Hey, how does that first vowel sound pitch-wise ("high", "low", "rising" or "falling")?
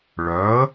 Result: rising